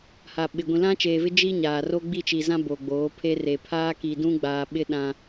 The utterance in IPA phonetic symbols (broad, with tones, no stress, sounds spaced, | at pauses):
h a˨ ɓ ɪ˨ ɡʷ ĩ˨ l ã˦ t͡ʃ eː˨ v ɪ˦ d͡ʒ i˦ ɲ aː˨ r o˦ ɡ͡b i˦˨ t͡ʃ i˨ z ã˦ b o˨ ɡ͡b oː˨˦ pʰ e˦ r e˨ pʰ aː˦ k i˨ d ũ˦ ɡ͡b aː˨ ɓ ɪ˦ ɗ ã˦